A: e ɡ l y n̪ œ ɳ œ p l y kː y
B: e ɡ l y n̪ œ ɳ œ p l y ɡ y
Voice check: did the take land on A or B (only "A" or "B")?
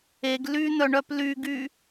B